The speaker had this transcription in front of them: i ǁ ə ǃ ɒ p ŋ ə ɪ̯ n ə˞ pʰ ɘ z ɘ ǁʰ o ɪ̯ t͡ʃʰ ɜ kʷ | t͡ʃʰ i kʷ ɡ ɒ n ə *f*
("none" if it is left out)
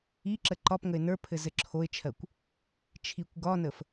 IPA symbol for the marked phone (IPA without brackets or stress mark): f